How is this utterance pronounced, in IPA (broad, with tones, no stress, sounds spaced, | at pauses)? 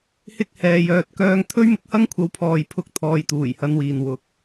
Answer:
h ɪ˧ k̚ h ɛː˨ j œː˨ t̚ k œː˨˧ ŋ t̪ʰ ɵ˥ ɥ m ɪ˧ k̚ h ɐ˥ ŋ kʷʰ ɐ˨˥ w pʰ ɔː˨ j pʰ ʊ˨˥ k̚ t̪ʰ ɔː˨ j t̪ uː˨˩ j h ɐ˨˧ n w iː˨ n w ʊ˨˥ k̚